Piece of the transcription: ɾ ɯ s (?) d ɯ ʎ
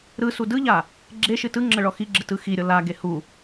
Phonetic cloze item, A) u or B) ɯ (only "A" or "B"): A